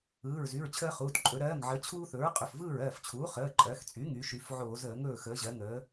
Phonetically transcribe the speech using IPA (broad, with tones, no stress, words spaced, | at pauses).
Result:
ɯː˩˧˩ɹzy˩˧˩ɹ t͡ɕʰəː˦χuː˩˧˩t ǃʼɵ˩˧ɾɜː˩˧˩ŋʕəː˩˧ t͡ɕʰuː˦θɵ˩˥ɹ qʼɵ˩˧˩fvɯː˥˩ɹɜː˥˩ft͡ɕʰuː˩˥ χəː˩˧˩ǃʼɜ˩˧xt͡sʼy˩˥ŋy˩˧ ʃy˩˧fʕoː˧˩˧zəː˧˩˧ ŋɵː˥˩xəː˩˥ʑɜ˩˥ŋəː˩˥